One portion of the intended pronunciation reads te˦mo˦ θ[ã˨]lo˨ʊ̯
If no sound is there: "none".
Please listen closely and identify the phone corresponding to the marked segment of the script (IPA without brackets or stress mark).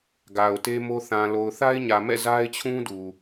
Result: ã˨